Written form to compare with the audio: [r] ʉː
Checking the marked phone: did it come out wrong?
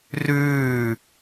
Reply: no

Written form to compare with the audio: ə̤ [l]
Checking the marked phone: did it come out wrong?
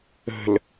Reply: no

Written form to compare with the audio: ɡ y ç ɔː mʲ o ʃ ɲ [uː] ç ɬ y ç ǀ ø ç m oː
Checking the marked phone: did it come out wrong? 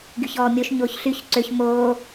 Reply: yes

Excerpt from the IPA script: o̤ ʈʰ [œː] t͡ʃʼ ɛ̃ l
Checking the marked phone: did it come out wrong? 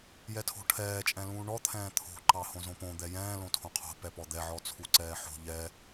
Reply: yes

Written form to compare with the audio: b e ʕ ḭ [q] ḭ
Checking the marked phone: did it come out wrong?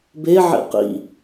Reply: no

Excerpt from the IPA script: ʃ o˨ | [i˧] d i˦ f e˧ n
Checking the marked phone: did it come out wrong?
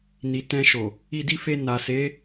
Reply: no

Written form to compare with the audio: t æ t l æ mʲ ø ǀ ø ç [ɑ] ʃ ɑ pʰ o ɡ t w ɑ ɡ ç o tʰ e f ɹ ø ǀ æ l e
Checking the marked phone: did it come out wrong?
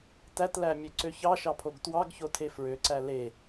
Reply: no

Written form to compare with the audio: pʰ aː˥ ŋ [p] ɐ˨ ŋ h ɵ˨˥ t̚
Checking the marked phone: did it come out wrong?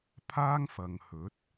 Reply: yes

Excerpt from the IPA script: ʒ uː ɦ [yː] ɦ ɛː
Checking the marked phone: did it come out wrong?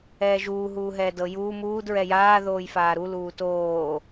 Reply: yes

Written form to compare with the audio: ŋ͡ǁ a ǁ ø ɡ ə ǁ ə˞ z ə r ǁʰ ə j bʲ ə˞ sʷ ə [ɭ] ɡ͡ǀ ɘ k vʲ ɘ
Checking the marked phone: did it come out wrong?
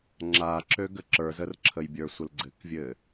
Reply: yes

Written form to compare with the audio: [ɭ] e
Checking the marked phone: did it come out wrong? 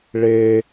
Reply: no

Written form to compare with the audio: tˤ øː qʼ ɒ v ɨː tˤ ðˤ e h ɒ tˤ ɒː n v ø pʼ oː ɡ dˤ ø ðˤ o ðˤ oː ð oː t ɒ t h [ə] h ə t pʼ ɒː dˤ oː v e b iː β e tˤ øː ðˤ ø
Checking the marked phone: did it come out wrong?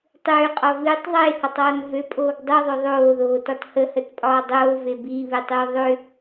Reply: no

